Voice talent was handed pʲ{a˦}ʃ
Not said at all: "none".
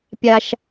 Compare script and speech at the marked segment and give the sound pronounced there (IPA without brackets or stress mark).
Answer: a˦